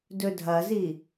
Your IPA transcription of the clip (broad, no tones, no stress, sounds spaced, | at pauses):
d ɵ dʱ ɐ z i